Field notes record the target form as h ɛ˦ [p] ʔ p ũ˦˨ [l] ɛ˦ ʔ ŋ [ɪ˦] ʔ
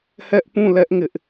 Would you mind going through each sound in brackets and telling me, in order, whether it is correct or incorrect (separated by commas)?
incorrect, correct, correct